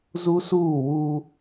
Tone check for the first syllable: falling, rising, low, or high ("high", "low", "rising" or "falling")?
high